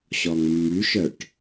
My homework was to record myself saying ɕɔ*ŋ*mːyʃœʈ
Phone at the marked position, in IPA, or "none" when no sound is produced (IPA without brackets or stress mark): ŋ